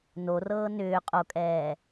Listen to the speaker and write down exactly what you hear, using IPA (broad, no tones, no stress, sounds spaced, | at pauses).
n o r ɤː n ʏː qʼ o kʼ ɛː